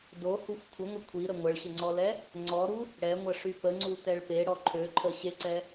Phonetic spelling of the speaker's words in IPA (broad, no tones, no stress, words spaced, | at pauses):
dohuxʷ kʷʰəŋʷə kʷʰiɾə ŋʷəɭɕəŋ͡ǀɔlɛ | ŋ͡ǀɔɾu | ɽɛŋʷəʂy pəŋ͡ǀutɛɭ peɽɔ ǃʰøǃʰəɕeǀɛ